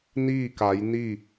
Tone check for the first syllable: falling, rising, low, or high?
falling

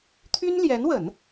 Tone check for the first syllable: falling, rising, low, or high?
high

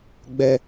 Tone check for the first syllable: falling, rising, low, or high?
high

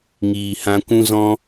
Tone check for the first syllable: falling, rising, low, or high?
low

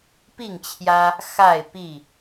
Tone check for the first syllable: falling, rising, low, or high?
falling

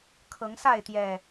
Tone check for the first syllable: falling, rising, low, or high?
rising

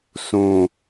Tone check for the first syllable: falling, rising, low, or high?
low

